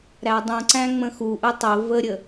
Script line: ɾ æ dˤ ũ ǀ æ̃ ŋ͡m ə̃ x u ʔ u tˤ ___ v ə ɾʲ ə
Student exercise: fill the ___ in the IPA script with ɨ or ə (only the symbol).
ə